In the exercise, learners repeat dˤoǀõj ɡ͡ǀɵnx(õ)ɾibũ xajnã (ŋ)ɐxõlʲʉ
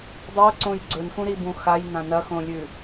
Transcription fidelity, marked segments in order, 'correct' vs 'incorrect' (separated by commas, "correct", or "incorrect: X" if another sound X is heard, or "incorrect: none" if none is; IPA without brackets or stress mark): incorrect: ũ, incorrect: n